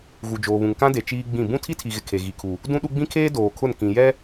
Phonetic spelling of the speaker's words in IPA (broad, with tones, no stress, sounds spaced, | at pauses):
ɣ u˨ d͡ʒ oː˨ β ũ˨ ŋ k ã˦ d e˨ t͡ʃ iː˦ ɡ͡b ĩ˦˨ b ũ˦ tʰ i˦ tʰ i˨ ɣ ɪ˨ kʰ e˨ ɣ i˨ kʰ u˨ | d ũ˦ ɗ u˦ ɡ͡b ĩ˦ kʰ eː˦ d oː˨ kʰ ʊ˦˨ n k ĩ˨ j ɛ˦